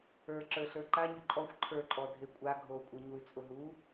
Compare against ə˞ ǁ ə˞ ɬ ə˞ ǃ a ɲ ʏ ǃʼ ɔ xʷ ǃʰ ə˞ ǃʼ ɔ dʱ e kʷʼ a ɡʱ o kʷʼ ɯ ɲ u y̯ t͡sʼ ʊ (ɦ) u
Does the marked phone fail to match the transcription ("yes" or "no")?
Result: no